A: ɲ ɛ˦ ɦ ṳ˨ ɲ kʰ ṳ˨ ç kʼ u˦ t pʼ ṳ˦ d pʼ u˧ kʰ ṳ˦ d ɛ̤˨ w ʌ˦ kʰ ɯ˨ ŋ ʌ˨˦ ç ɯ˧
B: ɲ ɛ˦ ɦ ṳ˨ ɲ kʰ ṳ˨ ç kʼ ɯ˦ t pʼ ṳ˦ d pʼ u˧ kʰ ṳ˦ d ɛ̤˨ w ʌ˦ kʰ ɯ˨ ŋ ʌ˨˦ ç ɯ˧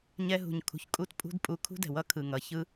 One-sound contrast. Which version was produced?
A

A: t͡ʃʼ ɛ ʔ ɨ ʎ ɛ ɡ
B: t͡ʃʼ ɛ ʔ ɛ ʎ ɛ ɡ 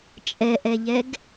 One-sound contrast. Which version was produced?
B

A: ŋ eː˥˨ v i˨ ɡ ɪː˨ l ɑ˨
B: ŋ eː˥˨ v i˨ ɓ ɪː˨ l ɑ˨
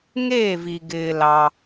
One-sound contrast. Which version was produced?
A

